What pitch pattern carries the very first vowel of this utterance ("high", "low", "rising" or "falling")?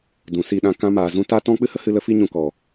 low